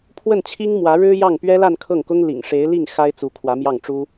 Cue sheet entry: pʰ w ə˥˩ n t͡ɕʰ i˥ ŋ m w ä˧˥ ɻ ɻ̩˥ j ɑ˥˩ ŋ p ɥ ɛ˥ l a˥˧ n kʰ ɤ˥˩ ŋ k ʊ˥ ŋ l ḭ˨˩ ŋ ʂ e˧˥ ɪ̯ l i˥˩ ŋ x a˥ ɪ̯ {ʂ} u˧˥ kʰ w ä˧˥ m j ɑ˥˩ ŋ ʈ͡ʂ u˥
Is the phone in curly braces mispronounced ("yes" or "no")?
yes